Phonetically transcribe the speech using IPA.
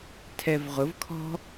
tʰɛvʁʊvkʰɔ̤

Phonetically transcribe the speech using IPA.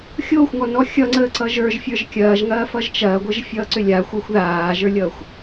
xʲoːxʷŋɔnɔ xʲʌŋ͡ǀəː ǀʌʒə˞ʒ fʲə˞ʒkʲɐːʒŋɐː fʌʒt͡ʃɐːɡʷəʒ fʲʌːǀʏlʲa xʷəːxʷðaːʒə˞lʲʌːxʷ

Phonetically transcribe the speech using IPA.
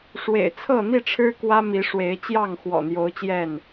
ʂwḛ˨˩ɪ̯t͡sʰɤ˥˨n̪i˥˨ʈ͡ʂʰɻ̩˦ kwä˦mi˨˦ ʂwe˨˦ɪ̯t͡ɕjɑ˥˨ŋ xwɔ̰˨˩n̪jo˨˦ʊ̯ t͡ɕjɛ˥˨n

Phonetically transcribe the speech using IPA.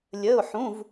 lʲəː˧˥˧ʊ̯ħũ˧˥˧v

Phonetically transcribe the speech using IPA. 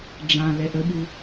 ɖ͡ʐã lɛʔəɓu

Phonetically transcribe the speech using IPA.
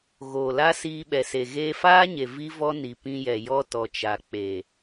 ɣoː˨la˦ siː˧ɓɛ˨se˨ ɣeː˧faː˦ɲe˨ vi˦ vɔ˦ni˨pĩ˧jɛ˨ jɔ˦ tɔ˨t͡ʃa˨ k͡pe˨

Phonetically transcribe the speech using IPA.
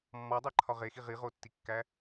mːɒdˤeǃʰɒ ʁexi ʁiʁotːikːæ

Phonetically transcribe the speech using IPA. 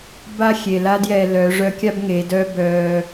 ba˧xʲe˩ la˥djɛː˧ lœ˩˧ʐœ˧˥kʲa˥bŋe˩˧ dœ˥ bœː˧

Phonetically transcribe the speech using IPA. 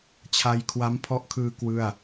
t͡ɕʰa˧jkʰwa˦˥mpʰɔ˦˥ʔkʰɯː˧ kwɯ˥˩a̯

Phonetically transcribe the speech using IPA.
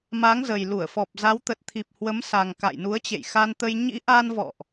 ma˨˦ŋzə˨˩jlu˧˩ə̯fɔ˨˩p̚ za˨˦wt̪ə˨˩t̚t̪ʰi˨˩p̚ hwə˨˦msa˨˩ŋ ka̰˧˨jnu˨˦ə̯ t͡ɕḛ˧˨jxa˧nt̪ə˧j ɲḭ˧˥ʔa˧nvɔ̰˧˨ʔ

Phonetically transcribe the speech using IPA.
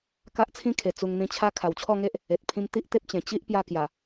ka˦ʔt͡sʰĩ˦kʰe˨˩ t͡su˧ŋn̪ĩ˧t͡ɕʰa˦ kʰa˨˩wt͡ɕʰɔ˥˧ŋe˦ʔ | e˨t̚pʰĩ˧m t̪i˦ʔt̪e˦p̚t͡ɕẽ˨˩ t͡ɕi˦ʔ pja˧kja˨˩

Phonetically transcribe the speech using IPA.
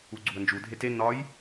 uɡ͡ǀuə̯nd͡ʒu dʱete nɒj

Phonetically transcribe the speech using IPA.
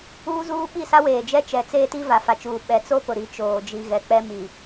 uː˦zuː˦ ɓi˦˨sa˦weː˨ d͡ʒɛ˦t͡ʃɛ˨t͡seː˦ti˦ va˨fa˨t͡ʃuː˨ ɓɛ˨t͡so˦ pʊ˨ɾi˨˦t͡ʃoː˨ d͡ʒi˨ɣɛ˨ k͡pɛ˦ mi˨

